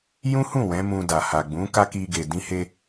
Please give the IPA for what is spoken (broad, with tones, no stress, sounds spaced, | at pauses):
j ũ˦ h ũ˦˨ w ɛ̃˨˦ m ũ˧ d a˨ h a˨ ɡ͡b ũ˨˦ k a˦ k i˧ ɡ e˨ d ĩ˧ h e˧